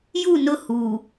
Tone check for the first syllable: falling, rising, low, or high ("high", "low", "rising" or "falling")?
falling